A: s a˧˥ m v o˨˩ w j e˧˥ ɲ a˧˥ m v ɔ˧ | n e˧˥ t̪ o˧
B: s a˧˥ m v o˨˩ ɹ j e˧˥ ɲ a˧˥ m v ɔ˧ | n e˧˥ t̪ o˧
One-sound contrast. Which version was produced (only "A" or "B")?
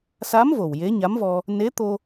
A